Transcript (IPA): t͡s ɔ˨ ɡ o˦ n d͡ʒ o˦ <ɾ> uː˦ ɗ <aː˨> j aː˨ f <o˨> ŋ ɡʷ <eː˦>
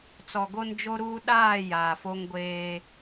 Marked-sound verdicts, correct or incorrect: correct, incorrect, incorrect, correct

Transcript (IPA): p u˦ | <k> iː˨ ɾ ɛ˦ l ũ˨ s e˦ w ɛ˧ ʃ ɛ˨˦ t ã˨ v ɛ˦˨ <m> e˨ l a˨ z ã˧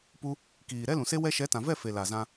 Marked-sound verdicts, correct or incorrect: correct, incorrect

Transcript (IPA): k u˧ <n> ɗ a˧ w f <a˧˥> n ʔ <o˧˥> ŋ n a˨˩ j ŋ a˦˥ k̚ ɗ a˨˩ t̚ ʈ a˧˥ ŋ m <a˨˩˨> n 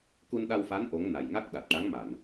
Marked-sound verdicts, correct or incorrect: correct, correct, correct, correct

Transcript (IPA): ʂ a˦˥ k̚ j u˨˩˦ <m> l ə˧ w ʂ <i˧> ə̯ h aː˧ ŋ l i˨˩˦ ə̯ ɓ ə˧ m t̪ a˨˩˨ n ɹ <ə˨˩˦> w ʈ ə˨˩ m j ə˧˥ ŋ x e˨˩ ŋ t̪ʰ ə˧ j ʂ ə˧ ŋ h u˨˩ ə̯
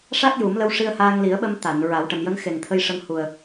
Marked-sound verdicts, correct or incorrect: correct, correct, incorrect

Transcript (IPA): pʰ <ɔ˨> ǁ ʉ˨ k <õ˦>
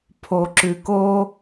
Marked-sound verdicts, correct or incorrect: incorrect, incorrect

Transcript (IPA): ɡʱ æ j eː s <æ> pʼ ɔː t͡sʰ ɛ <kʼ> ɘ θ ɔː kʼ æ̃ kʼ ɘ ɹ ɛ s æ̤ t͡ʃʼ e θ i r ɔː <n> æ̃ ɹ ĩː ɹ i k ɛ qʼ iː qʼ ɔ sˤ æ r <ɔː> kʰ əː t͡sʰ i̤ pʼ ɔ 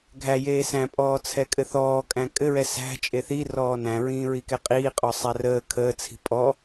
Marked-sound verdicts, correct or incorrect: incorrect, correct, correct, incorrect

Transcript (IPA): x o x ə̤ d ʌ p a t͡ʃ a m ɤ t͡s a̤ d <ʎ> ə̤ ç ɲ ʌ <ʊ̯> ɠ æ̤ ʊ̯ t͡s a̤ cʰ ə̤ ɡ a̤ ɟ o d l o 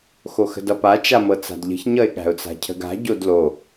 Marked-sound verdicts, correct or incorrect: correct, incorrect

